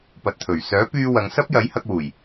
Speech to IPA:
p ɐ˨ t̚ t̪ʰ ɵ˨˩ ɥ s œː˨˥ p yː˧ w ɐ˨˧ ŋ s ɐ˥ p̚ j ɐ˨˥ j h ɐ˧ k̚ w uː˨˩ j

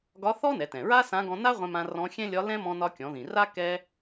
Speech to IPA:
ɡ ɒ˧˥ θ ɔ˥ n ɛ˩˧ t ɛ̃˩ ɹ a˥ s ã˧˥ ɡ ɔ̃˧ n a˥ ʁʷ ɛ̃˧ m ã˧ r ɔ̃˧˥ xʲ ɛ̃˥ lʲ ɒ˧˥ l ɛ̃˥ m ɔ̃˧ n ɒ˧ kʲ ɔ̃˩˧ ð ĩ˩ r a˥ k ɛ˥

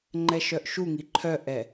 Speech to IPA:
ŋ͡ǃ ɛ ʃ œ ʔ ʃ u ŋ i ǃʰ œ ʔ ɛ

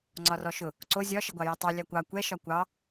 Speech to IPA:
ŋ͡ǀ ɒ r ɔ ʃ ʊ | ǀ o zʲ ɒ ʃ ə ɡʷ ɑ j a tˤ ɑ lʲ a kʷ ɑ kʷ ɛ ʃ ɒ kʷ ɑ

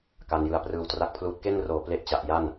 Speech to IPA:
k a˧ n j ɯ˧ a̯ p r ɯː˧ w t r a˦˥ k̚ pʰ l uː˦˥ t̚ k e˥˩ n r oː˨˩ p l e˥˩ ʔ t͡ɕ a˨˩ ʔ j a˥˩ n

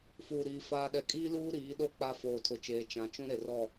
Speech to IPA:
f uː˨ ɾ iː˨ f aː˨ ɗ ɛ˨ kʼ iː˦ l uː˦ ɾ iː˨˦ ɗ o˦ k͡p a˦ f oː˨ tʰ ʊ˨ t͡ʃ eː˨ t͡ʃ ã˨ t͡ʃ ũ˦ ɾ e˨ r ɔ˦˨

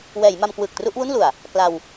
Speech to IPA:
w ɛː˩˦ j m a˧ m k w ɯː˨˩ k̚ t r u˥˩ ʔ w u˥˩ n l u˨˩ a̯ | k l a˧ w

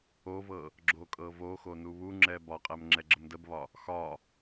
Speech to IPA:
o v ɤ | ɡ͡ǁ o kʼ ɤ v o x o n u β u ŋ͡ǁ ɛ b ɒ qʼ ɛ m ŋ͡ǁ ɛ ɡ͡ǁ ə m d ə b β ɒ | x ɒ

